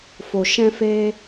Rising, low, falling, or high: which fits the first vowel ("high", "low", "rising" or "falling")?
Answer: low